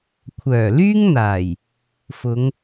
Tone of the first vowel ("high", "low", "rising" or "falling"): low